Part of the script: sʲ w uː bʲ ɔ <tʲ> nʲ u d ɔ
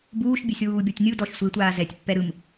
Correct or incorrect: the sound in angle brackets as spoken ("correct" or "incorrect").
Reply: correct